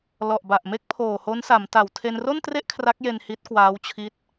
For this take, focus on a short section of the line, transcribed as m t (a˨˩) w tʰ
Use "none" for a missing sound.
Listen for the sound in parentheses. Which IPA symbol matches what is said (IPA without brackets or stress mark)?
a˨˩